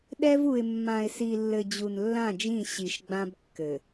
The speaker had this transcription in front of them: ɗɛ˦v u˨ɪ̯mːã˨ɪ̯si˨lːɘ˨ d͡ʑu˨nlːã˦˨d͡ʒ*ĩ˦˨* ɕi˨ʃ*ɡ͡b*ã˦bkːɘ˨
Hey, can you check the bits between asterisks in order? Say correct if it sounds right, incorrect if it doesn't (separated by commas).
correct, correct